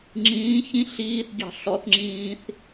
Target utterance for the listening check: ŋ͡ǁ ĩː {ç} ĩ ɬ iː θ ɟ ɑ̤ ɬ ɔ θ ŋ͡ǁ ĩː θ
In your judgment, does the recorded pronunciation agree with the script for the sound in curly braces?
yes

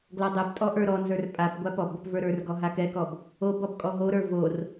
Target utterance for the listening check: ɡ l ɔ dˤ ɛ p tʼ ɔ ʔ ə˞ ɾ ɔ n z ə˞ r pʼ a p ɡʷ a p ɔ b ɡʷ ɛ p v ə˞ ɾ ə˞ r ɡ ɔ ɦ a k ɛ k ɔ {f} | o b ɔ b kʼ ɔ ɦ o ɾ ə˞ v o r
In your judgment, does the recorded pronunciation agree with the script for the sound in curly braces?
no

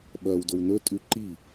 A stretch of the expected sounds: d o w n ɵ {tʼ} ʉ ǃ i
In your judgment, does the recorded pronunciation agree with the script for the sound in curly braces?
yes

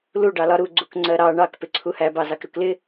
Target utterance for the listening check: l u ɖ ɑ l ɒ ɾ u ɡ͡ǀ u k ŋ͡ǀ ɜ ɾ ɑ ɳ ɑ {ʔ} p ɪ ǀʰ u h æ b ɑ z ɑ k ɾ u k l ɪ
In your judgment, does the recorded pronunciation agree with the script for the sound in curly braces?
no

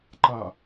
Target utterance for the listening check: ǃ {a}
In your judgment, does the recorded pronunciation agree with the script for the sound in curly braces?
yes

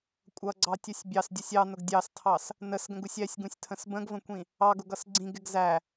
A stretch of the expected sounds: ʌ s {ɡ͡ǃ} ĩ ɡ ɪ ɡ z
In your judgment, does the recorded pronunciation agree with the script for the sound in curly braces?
no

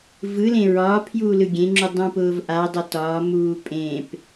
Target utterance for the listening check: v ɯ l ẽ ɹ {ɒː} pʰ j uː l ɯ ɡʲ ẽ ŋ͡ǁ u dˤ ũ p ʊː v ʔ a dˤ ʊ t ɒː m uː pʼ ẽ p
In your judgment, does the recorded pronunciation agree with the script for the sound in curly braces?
yes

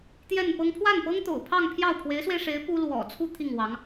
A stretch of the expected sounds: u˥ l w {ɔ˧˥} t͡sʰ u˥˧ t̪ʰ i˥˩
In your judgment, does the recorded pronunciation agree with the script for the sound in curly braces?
no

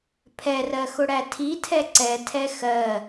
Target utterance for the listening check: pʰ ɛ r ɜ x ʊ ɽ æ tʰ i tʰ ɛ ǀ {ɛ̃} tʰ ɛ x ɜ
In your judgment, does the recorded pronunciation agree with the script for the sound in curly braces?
no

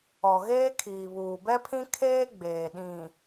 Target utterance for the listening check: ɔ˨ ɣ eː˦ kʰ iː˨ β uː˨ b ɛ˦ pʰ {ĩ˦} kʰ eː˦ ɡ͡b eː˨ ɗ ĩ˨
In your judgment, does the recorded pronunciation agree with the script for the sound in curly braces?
yes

